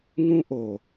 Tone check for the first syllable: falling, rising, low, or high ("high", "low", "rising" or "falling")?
high